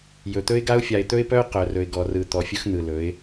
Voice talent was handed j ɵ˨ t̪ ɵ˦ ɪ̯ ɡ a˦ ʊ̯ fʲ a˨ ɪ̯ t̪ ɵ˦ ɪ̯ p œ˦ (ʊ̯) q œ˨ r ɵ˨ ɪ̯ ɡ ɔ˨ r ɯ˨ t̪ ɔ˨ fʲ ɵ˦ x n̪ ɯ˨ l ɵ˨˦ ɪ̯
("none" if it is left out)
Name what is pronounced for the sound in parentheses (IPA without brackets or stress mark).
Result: ʊ̯